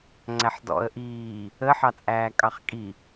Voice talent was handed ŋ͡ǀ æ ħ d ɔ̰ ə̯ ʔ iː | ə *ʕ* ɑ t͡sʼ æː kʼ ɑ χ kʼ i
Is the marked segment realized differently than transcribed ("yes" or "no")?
yes